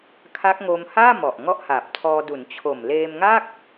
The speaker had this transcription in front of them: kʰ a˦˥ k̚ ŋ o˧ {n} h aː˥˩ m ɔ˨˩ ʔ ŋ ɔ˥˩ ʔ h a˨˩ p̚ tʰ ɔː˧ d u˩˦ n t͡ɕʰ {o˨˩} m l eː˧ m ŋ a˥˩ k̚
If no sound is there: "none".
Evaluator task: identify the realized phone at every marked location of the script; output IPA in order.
m, o˨˩

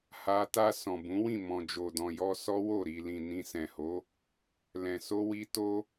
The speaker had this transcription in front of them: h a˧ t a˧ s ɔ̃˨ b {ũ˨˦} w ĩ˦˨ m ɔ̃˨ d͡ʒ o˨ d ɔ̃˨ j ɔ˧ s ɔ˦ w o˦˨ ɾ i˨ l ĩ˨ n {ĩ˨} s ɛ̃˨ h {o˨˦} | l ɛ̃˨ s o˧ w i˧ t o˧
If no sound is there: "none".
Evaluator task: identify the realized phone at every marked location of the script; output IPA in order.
ũ˨˦, ĩ˧, o˨˦

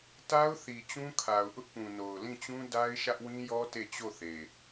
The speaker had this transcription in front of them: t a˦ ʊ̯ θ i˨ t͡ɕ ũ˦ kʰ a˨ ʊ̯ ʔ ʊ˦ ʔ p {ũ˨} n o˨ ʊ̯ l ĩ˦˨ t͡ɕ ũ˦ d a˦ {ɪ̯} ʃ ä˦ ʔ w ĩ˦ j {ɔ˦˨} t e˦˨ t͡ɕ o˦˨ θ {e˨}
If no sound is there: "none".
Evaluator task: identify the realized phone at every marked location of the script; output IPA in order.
ũ˨, ɪ̯, ɔ˦, e˨

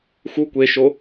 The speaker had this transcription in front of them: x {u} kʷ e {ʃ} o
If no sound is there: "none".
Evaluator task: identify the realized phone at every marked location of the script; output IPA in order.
u, ʃ

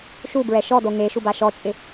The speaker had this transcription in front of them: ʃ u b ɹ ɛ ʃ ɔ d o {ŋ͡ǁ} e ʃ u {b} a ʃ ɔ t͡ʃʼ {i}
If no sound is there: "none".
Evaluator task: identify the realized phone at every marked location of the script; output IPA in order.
ŋ, b, ɪ

